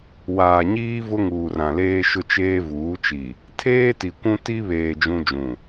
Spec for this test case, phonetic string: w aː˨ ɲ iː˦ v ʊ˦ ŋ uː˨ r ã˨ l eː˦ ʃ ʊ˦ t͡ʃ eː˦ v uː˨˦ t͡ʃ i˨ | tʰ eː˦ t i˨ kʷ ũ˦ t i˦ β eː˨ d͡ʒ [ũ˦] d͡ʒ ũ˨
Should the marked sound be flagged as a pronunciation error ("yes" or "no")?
no